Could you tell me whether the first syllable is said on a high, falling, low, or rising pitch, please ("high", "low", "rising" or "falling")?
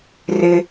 high